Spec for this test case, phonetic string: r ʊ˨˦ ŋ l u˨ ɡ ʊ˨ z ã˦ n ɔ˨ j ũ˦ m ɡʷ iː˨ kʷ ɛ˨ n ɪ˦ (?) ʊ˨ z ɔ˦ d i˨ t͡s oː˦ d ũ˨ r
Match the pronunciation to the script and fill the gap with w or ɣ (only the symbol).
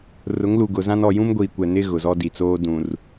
ɣ